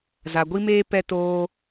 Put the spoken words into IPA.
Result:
za˨ɡʷi˦meː˦ pɛ˧toː˧

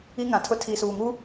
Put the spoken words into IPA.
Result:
i˦ŋã˨tʰʊ˦ tʰi˨suː˨ŋu˦

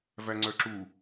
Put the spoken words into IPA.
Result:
væŋ͡ǀœǁu

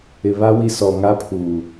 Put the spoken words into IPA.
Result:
ɪ˨βa˦ wi˦sɔ˨ ŋa˦pʰuː˨

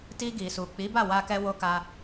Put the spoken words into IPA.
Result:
ti˧ɡi˨su˨ k͡pi˨˦ba˦˨ wa˧kɛ˧ wo˧ka˧

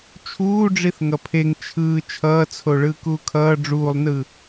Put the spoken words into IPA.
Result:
t͡ʃʰuːɖ͡ʐiθ ŋʌpʰeŋ t͡ʃʰɯː t͡ʃʰʌːt͡sʰo ɭɯːkuːkʰʌː ɖ͡ʐuːlˠnɯ

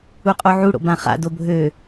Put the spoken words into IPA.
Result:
uqʼoʕuɽo̰ bãχa̰ dobʱø

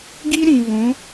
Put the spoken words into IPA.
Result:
ɡi˦ ɾĩ˨vũ˨˦

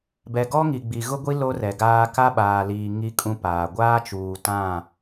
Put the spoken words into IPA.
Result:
bɛ˨ɡɔ˦ŋi˨ ɡ͡bi˨ɣʊ˦ɡʷi˦ lo˦rɛ˨ɡaː˦ ka˦ɓaː˨liː˨ ŋi˦kʼũ˦paː˨ ɡʷaː˦t͡ʃuː˨tã˦˨

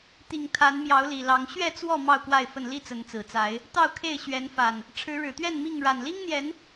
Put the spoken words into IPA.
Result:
t̪i˨˩ŋ t̪ʰa˨˦nmjɑ˨˦ʊ̯li˨˩lɑ˨˦ŋ ɕɥɛ˥˨t͡swɔ˥˨ mɑ˥˨ʊ̯kwa˥˨ɪ̯fə˥˨n li˥˨t͡sə˨˦nt͡sɹ̩˨˩t͡sa˨˦ɪ̯ | t̪ɑ˥˨ʊ̯kʰe˥˨ɪ̯ɕɥɛ˨˦nfa˨˩n | ʈ͡ʂʰɻ̩˨˦ɻɻ̩˨˩t̪ɥɛ˥˨n mi˥˨ŋ ɻa˨˩nli˦ŋn̪jɛ˨˦n

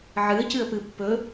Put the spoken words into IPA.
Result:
ʕɨə̯cɨə̯pɨ pːɵ

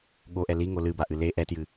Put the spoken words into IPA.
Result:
ɠoʔɛ liŋo lɨbaʔɨ le ʔɛtjɨ

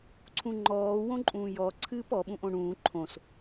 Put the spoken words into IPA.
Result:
ǀʰũŋ͡ǃɔː wõǃʼũːjɔ ǀʰɨːpɔ ɓũʔõɳũː ǃʰõs

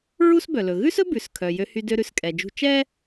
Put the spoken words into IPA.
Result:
ɹu˥sbœ˩lɵ˩ ɣʉ˥sɵ˥ bʉ˩s kʰœ˩ jø˧hy˧dø˧ ɾʉ˩skʼɛ˩d͡ʒṳ˧ t͡ʃɛ˥

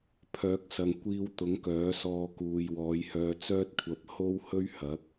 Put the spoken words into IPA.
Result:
pʰœː˨˥k̚sɐ˨ŋ kʷiː˧wt̪ʊ˨˥ŋ kœː˨˥sɔː˧ kuː˨jwɔː˨˧jhœː˧ t͡sœː˥t̚kʷʰɐ˧p̚ho˥whɵ˥ɥ hɐ˨˥k̚

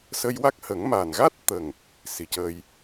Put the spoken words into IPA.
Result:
sə˧jwa˦˥k̚hə˨˩˦ŋ ma˨˩nɣa˦˥t̚t̪ə˨˩ŋ | si˨˩˦cə˧j

